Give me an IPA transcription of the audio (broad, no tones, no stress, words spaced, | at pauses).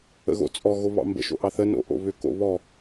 ə̰ɣo̰t͡sʼɔ ɣoβɑ̰mbə̰ ʃo̰ʔɑθə no̰ʔo̰βʏ ko̰βɔ